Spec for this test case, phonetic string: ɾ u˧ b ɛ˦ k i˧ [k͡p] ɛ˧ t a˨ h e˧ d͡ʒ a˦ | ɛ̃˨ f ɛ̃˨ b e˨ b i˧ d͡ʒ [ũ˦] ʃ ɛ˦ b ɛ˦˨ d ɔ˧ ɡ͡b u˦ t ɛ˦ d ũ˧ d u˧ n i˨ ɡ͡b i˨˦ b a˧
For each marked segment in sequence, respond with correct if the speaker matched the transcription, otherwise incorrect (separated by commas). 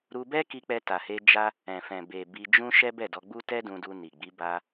correct, correct